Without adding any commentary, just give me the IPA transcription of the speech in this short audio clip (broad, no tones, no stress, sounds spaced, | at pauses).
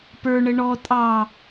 p ə˞ ɳ ə ɳ ɔ tʼ ɑ